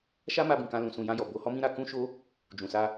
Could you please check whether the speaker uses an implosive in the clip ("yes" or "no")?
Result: no